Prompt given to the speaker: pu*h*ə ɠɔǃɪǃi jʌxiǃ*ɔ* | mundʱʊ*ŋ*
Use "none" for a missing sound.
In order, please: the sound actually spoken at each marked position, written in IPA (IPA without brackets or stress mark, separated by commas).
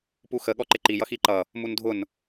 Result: x, ʌ, n